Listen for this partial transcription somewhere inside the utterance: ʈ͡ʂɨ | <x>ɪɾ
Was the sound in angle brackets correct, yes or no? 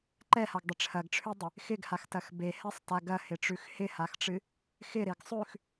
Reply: yes